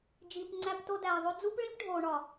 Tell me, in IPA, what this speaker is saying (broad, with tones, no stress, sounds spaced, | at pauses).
d͡ʒ iː˨ p ŋ͡ǀ æ˧ p t o˧ d æː˨ ðˤ o˧ d͡z u˦ p ɭ ĩ˦ p ɖʱ oː˨ ɳ ɒ˨